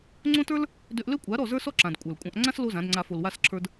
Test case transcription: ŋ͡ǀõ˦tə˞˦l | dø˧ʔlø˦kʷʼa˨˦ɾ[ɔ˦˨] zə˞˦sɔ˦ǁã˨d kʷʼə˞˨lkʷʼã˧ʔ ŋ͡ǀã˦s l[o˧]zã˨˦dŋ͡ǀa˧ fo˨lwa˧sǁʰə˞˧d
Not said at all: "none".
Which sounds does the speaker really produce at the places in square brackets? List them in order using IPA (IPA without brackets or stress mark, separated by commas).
ɔ˦˨, o˦